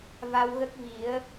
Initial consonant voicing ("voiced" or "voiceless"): voiced